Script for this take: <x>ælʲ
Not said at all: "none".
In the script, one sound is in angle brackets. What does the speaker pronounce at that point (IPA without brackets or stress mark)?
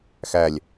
x